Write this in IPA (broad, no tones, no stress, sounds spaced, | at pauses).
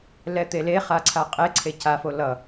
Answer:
l ɛ t̪ e l e χ a ǀʰ a qʼ e ǀʰ e c a f o l ʌ